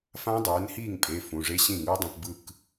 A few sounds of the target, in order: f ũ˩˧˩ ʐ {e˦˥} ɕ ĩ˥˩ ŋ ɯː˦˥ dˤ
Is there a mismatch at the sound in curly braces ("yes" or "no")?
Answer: no